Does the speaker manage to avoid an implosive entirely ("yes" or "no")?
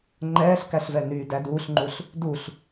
yes